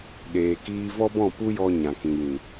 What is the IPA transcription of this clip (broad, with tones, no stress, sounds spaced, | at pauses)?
ɗ eː˨ k iː˧ v ɔ˦ b ɔ̃˦˨ p u˦ j ɔ˧ ɲ ã˨ k ĩ˨ j ĩ˨